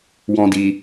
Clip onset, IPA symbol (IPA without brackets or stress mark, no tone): w